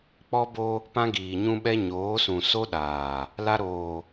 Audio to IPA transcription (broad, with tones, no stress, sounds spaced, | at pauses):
k͡p ɔ˦ b o˦ | p ã˦ ɡ iː˨ ɲ ũ˦ ɓ ɛ˦ ɲ oː˨˦ s ũ˨ s o˦ ɗ aː˨ | l a˦ ɾ oː˨